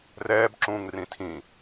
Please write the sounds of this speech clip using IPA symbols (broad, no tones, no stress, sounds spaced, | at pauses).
r ɛː b ǁ ũː ŋ r ĩ tʰ ĩ